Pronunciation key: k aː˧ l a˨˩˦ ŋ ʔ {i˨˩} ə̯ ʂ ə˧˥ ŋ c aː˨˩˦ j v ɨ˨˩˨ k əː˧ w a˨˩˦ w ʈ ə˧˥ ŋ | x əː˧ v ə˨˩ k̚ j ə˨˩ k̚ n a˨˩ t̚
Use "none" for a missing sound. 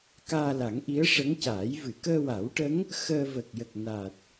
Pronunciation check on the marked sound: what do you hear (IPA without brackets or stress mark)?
i˧˥